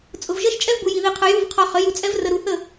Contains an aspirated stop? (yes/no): yes